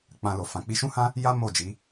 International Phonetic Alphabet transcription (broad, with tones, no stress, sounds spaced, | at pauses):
k͡p ã˧ l o˨ f ã˨ k͡p i˧ ʃ ũ˦ h ã˦ | j a˦ m o˦˨ d͡ʒ i˨˦